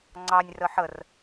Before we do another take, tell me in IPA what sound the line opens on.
ŋ͡ǀ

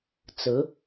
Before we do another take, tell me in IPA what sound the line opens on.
t͡s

